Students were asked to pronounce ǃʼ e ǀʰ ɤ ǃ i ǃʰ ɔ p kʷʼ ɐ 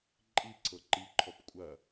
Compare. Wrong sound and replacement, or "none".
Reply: e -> i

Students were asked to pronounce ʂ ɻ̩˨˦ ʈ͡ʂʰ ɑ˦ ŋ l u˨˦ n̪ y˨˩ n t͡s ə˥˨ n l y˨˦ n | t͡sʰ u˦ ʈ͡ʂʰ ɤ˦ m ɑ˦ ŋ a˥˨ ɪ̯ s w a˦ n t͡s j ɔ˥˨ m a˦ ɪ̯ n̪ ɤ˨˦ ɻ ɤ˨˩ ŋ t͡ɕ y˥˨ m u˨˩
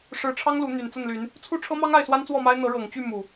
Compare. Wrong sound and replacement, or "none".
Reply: j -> w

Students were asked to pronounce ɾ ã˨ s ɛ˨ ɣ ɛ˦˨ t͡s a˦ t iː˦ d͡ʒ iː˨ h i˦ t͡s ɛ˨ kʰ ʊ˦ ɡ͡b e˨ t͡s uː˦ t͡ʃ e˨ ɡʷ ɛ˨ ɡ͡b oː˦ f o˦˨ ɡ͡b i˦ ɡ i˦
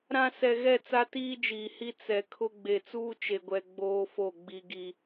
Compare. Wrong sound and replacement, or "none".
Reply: none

